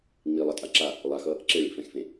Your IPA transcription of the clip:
ŋ͡milˠʌtʼa ǁa | lˠaxʌ | ǁeɭḭfɛ̃xfẽ

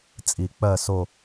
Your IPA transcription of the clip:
t͡sʼi˨˩˦k͡pɜ˦˨so˦˨

